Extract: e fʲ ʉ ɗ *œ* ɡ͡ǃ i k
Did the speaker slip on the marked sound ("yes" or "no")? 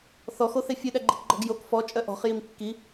yes